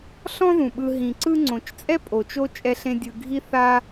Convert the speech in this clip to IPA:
ɬ ɔ̃˦ ð ũ˩ ɓ ɯ˨ ɦ ĩ˩ ǀ ɯ˦ ŋ͡ǀ õ˩ t͡ʃ t͡sʼ ɛ˦ pʼ o˩ t͡ʃ o˦ t͡ʃʼ ɛ˨ ɬ ẽ˨ dʲ ɯ˨ ɡʱ i˦ θ a˦

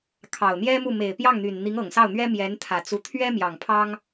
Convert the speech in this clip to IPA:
kʰ ɑ˨˩ ʊ̯ n̪ j ɛ˥ m u˥˩ m e˨˩ ɪ̯ p j ɑ˥˩ ŋ n̪ y˨˩ n n̪ i˧˥ ŋ ɤ˨˩ ŋ s ɑ˥˩ ʊ̯ n̪ ɥ ɛ˥ m j ɛ˧˥ n t̪ʰ ä˨˩ t͡s u˧˥ t̪ʰ ɥ ɛ˥ m j ɑ˨˩ ŋ pʰ ɑ˥ ŋ

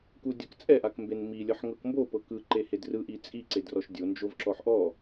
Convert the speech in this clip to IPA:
k u dʲ ɤ k t͡sʼ ɛ ʔ a k m b e n m i lʲ ɤ ħ ŋ ɤ k m b o p ɤ k ɯ ǃ e h e d r ɯ ʔ i t͡sʼ i ǀ e d r ɔ ʃ dʲ o n d͡ʒ o v ǁ ɔ ħ ʔ ɔ

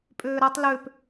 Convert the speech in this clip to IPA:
pʼ øː ɾ a tˤ l ø p

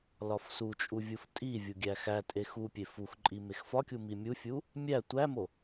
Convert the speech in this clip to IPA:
l ɒ f s u t͡ʃʼ u vʲ u f tʼ i vʲ u ɡʲ æ x æ tʼ e x u pʲ e f u x ǃʼ i m e x f ɒ kʲ u m i mʲ u fʲ u | mʲ æ tʷ æ m o

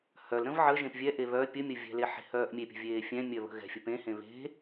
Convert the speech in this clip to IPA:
h œ l ɾ ə̃ v ʕ ə ʒ ẽ p vʲ ɛ ʔ e β œ pʲ ə mʲ ə vʲ ɛ̤ l e ħ e̤ h œː ʔ mʲ e pʲ ə̤ vʲ eː fʲ ɛ̃ mʲ œ β ə̤ ɣ ɛ̤ fʲ ə p ẽ h ẽ β e̤

